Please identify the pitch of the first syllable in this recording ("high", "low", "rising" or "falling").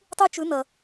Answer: high